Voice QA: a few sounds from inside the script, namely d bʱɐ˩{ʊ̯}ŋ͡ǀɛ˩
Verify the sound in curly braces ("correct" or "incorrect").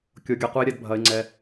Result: incorrect